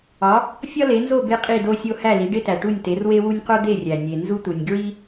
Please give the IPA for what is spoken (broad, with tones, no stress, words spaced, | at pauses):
ɒ˩˥ | fʲɒ˥le˩˥nzo˥˩ be˥qʼi˥˩do˥sʲo˥ hæ˥˩li˩˥ɖe˥tæ˩ ʈu˥˩nʲte˩˥rwe˥wu˥nʲ qo˥d̪e˥˩rʲæ˩ nʲe˩ nzu˥t̪u˩nʲ ɡɹi˥